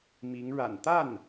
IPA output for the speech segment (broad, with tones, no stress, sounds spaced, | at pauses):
m i˧˥ ŋ ɻ a̰˨˩ n t̪ a˥˩ n